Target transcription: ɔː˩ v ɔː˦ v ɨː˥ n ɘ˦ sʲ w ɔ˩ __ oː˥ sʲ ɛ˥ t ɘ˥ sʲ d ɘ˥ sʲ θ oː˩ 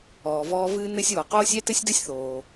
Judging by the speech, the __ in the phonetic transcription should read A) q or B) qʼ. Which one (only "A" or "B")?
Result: A